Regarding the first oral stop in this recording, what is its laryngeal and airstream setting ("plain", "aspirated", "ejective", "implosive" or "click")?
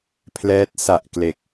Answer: aspirated